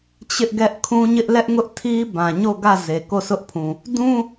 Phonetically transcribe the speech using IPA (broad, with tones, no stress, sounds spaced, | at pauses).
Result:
t͡ɕ ɪ˦ ʔ ɡ ɛ˦ ʔ kʰ ũ˦ ɲ ɪ˦ ʔ l ɛ˦ ʔ ŋ ʊ˦ ʔ tʰ i˦ b ã˨ ɲ o˦˨ ɡ ä˦˨ z e˨ k o˦˨ sʰ ʊ˦ ʔ pʰ ũ˨ | d ũ˦